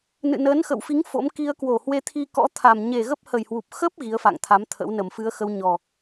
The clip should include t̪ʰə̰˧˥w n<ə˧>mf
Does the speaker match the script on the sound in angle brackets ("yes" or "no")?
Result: no